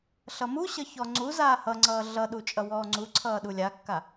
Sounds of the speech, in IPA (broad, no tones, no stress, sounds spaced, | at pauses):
ɬ ʌ m u ɕ ʌ ç ɔ ŋ͡ǀ u z aː h ʌ ŋ͡ǀ ʌː ɮ ʌ ɗ u t͡ʃʼ ʌ w ɔː ŋ͡ǀ u ǀʰ ʌː ɗ u lʲ a kː a